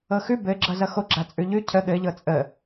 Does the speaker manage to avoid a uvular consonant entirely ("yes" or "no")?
yes